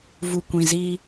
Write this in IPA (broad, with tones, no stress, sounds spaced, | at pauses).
v u˨ kʷ ĩ˨ z iː˦